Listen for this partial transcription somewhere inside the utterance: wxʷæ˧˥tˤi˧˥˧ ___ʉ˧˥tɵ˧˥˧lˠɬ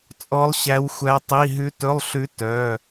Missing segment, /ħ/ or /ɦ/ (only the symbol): ɦ